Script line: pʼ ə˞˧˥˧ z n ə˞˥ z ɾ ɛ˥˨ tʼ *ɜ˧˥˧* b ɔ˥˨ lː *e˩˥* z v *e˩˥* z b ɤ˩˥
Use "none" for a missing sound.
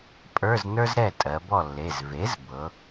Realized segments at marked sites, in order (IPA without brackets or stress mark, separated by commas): ɜ˩˧, e˩˧˩, e˩˥